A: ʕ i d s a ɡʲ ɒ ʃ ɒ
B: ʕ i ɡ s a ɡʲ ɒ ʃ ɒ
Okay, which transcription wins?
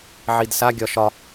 A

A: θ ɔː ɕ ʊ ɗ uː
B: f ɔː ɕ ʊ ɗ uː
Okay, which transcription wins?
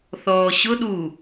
A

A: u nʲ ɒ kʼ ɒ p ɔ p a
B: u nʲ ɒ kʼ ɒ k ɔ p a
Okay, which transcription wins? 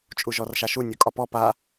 A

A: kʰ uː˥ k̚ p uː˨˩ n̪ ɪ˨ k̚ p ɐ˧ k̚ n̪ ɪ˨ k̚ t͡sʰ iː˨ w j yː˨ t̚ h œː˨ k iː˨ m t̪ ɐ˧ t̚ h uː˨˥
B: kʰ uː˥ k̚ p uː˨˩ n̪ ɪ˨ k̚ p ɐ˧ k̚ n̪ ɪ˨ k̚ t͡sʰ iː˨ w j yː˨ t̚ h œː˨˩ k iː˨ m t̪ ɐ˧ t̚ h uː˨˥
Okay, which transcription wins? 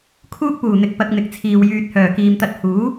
B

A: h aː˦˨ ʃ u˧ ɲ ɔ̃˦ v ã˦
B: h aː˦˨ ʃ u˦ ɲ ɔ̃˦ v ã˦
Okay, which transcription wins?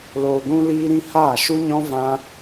B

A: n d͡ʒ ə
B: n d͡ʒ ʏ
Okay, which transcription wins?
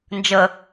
A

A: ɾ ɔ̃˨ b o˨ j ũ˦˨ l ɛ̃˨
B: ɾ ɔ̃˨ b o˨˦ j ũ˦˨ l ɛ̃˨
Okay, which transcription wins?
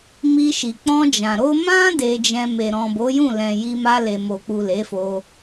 B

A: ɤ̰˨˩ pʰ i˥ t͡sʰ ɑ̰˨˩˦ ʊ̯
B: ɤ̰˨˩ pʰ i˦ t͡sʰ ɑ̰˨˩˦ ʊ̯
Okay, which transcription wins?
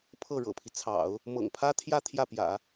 B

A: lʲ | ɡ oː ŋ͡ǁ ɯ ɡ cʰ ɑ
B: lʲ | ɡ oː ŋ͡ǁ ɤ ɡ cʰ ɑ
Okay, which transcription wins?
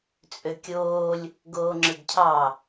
A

